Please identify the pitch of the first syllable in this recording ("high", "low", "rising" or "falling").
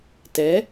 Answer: rising